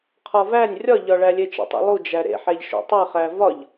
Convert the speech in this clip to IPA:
qʰ ɒ v æ nʲ rʲ ɒ ʎ ɒ ɭ æ lʲ e t͡ʃ ḛ tˤ ḭ lˠ u d͡ʒ æ ɾ ḛ ħ æ ʎ ʃ ṵ tˤ e χ æ v ɒ ʎ

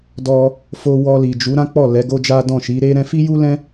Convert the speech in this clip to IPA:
d ɔ˧ | f o˧ w ɔ˧ l i˨ d͡ʒ u˨˦ ɾ ã˦ k͡p ɔ˦˨ l ɛ˨˦ ɡ o˦ d͡ʒ a˦ d ɔ̃˦˨ ʃ i˨˦ ɾ e˦ ɾ ɛ̃˧ f i˦ j u˦ l ɛ̃˦

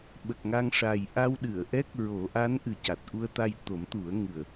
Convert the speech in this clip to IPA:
ɓ ə˨˩ k̚ ŋ a˧ ŋ ʂ a˨˩ j ʔ a˧ w ɗ ɨ˨˩˨ ə̯ ʔ ɛ˦˥ k̚ ɹ o˨˩˦ ʔ a˧˥ n ʔ ɨ˨˩ c a˨˩ t̚ ʔ u˧ ə̯ t̪ a˧ j t̪ o˨˩˦ m t̪ u˨˩˦ ə̯ ŋ ɨ˨˩ ə̯

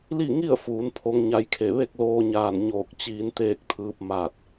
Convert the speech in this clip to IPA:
l i˥˨ ŋ i˥˨ ə̯ f uː˩˧ n pʰ o˧˥ ŋ ɲ a˧˥ j kʰ e˧˩ ʋ e˥˨ k̚ l oː˧ ɲ aː˧˩ n ɲ oː˧˩ k̚ t͡ɕ iː˧˥ n t̪ eː˥˨ k̚ t̪ʰ ɯː˧˥ p̚ m aː˧˩ t̚

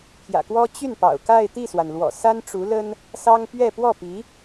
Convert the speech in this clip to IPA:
pʰ j ä̰˨˩ k w ɔ˥ t͡ɕ y˥˩ n p ɑ̰˨˩ ʊ̯ k a˥˧ ɪ̯ t̪ i˥˩ s w a˩ n l w ɔ̰˨˩ s a˥ n ʈ͡ʂ u˧˥ l ə˥ n | s ɑ˥ ŋ p ɥ ɛ˥˧ p w ɔ˥˩ p i˧˥

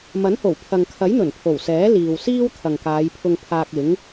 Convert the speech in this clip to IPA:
m ɐ˨˥ n h o˨˩ w pʰ ɐ˨ ŋ kʰ ɐ˨˥ j n̪ ɵ˨˩ n pʰ o˨˩ w s ɛː˨˥ l iː˨ w s iː˥ w t̪ʰ ɐ˨ ŋ k aː˨˧ j pʰ ʊ˧ ŋ pʰ aː˧ k̚ ɪ˨˥ ŋ

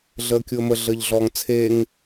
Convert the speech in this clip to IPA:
ɮ əː kʲ u ə̯ m ə ɮ əː ʎ ɮ ɔː ŋ t͡sʰ eː ŋ

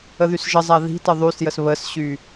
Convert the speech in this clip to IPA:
ə ð y s ʒ ə zˤ a ð i̤ t ə ðˤ y s j ə s β ə s ɕ y

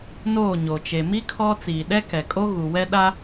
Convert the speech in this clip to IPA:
n oː˦˨ ɲ oː˨ t͡ʃ e˨ m i˦ kʰ ɔ˦ t͡s iː˨ ɗ ɛ˦ k ɛ˨ kʼ o˦ ɣ u˨ w ɛ˦ ɗ a˦

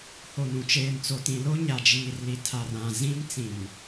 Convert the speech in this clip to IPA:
h o˨ n ũ˨ t͡ʃ eː˨ m t͡s o˨ t ĩ˨ l o˦ ɲ a˨ d͡ʒ iː˨ r l i˨ tʰ a˨ r ã˨ z ĩ˦ m t͡s ĩ˨ m

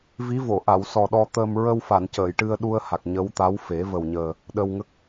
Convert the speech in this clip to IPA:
v i˧˥ v o˨˩˨ ʔ a˨˩˨ w s ɔ˨˩ ɗ ɔ˧ t̪ əː˧ m ɹ ə˧ w f a˨˩˨ n c əː˨˩˨ j ʈ ɨ˧ ə̯ ɗ u˧ ə̯ h a˨˩ k̚ ɲ ə˧˥ w t̪ a˧˥ w f e˨˩˦ v ə˨˩ w ɲ əː˨˩ | ɗ ə˧ w ŋ ə˦˥ k̚

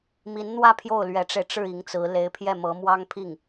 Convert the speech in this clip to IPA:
m i˧˥ n n̪ w ä˥˧ pʰ j o˥˩ ʊ̯ l ɥ ɛ˧˥ ʈ͡ʂ e˧ ɪ̯ ʈ͡ʂ ɻ̩˥˩ i˧˥ ŋ t͡s ɹ̩˧˥ l e˧˥ ɪ̯ pʰ j ɛ˥˩ m ɤ˧˥ m w ɑ˥ ŋ pʰ i˥˩ ŋ

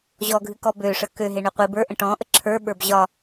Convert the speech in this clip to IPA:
ʑ ɔ ɡʱ ɨ k ɔ b ø ʂ ə k ø ɦ e ɳ ø qʷ i b ə˞ ʔ ə̃ ʈ ɔ̃ ʔ ə ǁʰ ə˞ ɓ ə˞ b ʑ ɒ

